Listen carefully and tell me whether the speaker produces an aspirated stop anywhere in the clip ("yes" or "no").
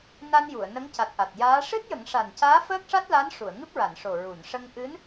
no